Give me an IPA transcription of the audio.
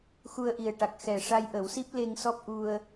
x u˧ ə̯ ʔ i˨˩ ə̯ ʈ a˨˩ k̚ x ɛ˨˩ ʂ a˧ j ʔ ə˨˩˦ w s i˦˥ p̚ l e˧ ŋ s ɔ˦˥ p̚ ʔ u˧ ə̯

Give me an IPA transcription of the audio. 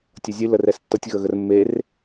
tʲ ʌ zʲ ɨ l ə r ɛ s tː ʌ tʲ ɣ ə ɣ ə r mː e r

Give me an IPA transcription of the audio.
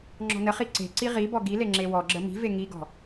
ŋ͡ǁ ɔ̤ n ə χ i ǀ e̤ ǀ i ʁ i b ɔ ɡ i l e ŋ͡ǁ e w ɔ ɡ͡ǁ ə m i̤ v e ŋ i ɡ ɔ̤

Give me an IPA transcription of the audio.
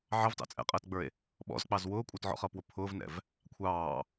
ʕ ɑ v t ɑ̰ t͡sʼ ɛ̰ qʼ əː t ɡ͡b ə˞ e̯ | ɓ ɔ̰ z k͡p ɑ z w ʊː kʷʼ ə˞ t ʕ ɔ̰ χ ʌː p w ʊ pʰ ʊː v n ɛ̰ v | kʷʰ ɑː

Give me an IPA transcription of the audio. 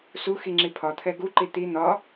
s u x i ŋ͡ǁ i pʰ ɒ t̪ʰ ɛ ɡ u ǃ i t̪ i n̪ ɒ

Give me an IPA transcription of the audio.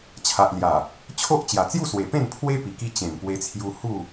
t͡ɕʰ a˨ ʔ l j a˨˩ | t͡ɕʰ o˦ ʔ t͡ɕ j a˨˩ t͡s j u˥˧ s w e˨˩ p ẽ˥˧ n pʰ w e˦ p i˨˩ k i˧ t͡ɕ ẽ˨˩ m p w e˧ t͡sʰ j u˧ h u˥˧

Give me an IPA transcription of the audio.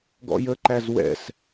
ɡ ɔ̰ j ə ǃ æ z w ɛ̰ s

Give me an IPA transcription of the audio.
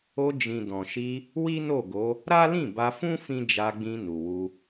o˧ d͡ʒ ĩ˨ d ɔ̃˨ ʃ i˧ | w i˦ n o˦˨ ɡ o˨˦ | ɾ a˦ l ĩ˦˨ b a˧ f ũ˦ f ĩ˦ d͡ʒ a˧ ɡ͡b ĩ˧ n u˨ w u˧

